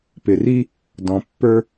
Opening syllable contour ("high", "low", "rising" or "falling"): low